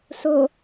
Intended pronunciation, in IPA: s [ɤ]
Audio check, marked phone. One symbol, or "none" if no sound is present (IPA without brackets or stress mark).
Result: o